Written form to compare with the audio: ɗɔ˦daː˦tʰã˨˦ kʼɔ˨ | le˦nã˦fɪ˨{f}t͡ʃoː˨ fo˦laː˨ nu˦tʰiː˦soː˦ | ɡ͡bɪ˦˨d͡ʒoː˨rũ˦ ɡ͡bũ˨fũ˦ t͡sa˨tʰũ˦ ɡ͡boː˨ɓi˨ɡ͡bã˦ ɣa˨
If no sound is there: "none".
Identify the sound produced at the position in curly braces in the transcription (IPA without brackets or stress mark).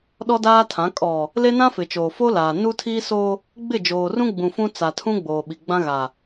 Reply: none